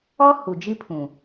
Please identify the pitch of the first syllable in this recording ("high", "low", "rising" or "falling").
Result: high